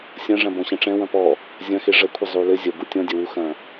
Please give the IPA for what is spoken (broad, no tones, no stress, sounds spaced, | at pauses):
sʲ ɐ̃ ʐ ɐ̃ b ɔ̃ ɕ ɛ̃ ʈ͡ʂ ɛ̃ w ɐ̃ p ɔ | zʲ ɐ̃ x e ʐ ɐ kʷʰ ɘ zˤ u l ɘ zʲ ɐ b u tʲ ɔ̃ dʲ ɐ w u x ɐ̃